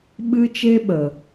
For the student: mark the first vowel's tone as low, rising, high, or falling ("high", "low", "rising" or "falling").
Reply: high